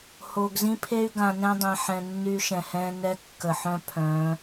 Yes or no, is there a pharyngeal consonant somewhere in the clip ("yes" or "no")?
yes